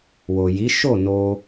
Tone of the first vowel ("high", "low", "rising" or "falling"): low